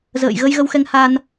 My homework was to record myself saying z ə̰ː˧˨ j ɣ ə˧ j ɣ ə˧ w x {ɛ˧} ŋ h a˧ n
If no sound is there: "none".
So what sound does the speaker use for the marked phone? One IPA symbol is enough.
ɛ˧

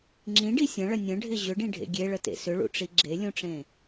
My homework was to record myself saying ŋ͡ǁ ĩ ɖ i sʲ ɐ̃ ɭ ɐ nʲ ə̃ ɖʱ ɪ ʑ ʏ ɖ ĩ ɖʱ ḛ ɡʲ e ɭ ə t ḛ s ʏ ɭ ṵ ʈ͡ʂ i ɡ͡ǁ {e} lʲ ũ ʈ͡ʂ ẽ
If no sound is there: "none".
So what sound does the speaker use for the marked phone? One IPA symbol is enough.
e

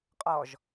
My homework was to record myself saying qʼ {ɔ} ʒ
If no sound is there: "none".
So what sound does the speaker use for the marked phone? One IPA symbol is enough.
ɔ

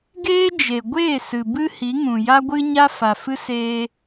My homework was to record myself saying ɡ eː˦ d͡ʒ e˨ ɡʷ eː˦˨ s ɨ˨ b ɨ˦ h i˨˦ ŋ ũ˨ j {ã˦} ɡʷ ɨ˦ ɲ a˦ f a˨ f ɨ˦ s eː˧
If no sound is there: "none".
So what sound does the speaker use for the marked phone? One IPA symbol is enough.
a˦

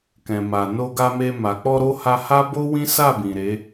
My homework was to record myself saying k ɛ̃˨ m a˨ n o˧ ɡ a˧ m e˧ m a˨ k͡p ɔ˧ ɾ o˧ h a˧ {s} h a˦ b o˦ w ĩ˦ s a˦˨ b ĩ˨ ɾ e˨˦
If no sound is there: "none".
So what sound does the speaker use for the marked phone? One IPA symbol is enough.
none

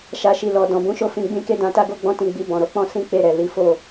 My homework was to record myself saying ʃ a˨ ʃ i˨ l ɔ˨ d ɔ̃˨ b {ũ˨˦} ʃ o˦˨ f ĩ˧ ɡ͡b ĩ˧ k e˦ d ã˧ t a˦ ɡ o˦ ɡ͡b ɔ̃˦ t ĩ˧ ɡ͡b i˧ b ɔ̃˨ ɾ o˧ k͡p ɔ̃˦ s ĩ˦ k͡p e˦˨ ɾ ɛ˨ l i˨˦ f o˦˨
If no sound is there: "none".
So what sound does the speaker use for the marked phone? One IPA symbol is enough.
ũ˨˦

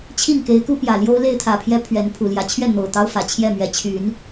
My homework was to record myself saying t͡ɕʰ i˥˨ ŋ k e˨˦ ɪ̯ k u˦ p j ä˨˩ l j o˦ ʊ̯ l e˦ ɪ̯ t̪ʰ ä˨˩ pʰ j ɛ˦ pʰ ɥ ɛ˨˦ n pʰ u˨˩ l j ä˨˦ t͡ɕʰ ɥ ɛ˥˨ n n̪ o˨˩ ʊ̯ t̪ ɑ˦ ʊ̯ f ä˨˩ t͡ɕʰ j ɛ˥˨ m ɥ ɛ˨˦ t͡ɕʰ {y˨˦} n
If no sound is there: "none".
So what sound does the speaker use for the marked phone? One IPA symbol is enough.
y˨˦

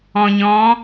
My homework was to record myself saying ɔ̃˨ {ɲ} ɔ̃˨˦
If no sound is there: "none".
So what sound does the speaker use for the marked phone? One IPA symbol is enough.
ɲ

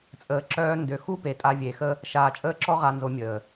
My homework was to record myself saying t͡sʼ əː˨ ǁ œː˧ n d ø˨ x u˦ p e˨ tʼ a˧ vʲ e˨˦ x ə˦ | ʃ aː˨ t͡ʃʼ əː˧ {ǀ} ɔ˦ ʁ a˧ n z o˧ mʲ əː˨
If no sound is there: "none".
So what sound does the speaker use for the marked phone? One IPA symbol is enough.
ǁ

